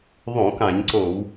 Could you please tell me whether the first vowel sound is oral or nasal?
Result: nasal